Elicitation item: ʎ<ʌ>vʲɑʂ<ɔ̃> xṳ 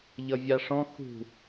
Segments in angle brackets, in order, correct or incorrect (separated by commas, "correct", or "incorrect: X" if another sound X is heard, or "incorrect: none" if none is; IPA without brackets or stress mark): correct, correct